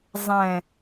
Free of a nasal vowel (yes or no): no